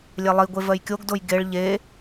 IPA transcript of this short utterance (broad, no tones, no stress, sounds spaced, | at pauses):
lʲ e lˠ i ɡʷ e v ɜ j kʲ o ɡ d o j ɡ e ɭ ʎ e